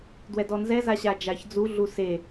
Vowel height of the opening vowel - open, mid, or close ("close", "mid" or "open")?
mid